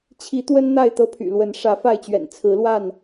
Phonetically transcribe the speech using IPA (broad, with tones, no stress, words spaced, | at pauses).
t͡ɕʰi˨˦t̪wə˦n n̪a˥˨ɪ̯t̪ɤ˦pʰy̰˨˩lwə˨˦n ʂä˨˦fa˥˨ɪ̯t͡ɕɥɛ̰˨˩n t͡sʰɹ̩˨˦lwa˥˨n